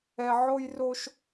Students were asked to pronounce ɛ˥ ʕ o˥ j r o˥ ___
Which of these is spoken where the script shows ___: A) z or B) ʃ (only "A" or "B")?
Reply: B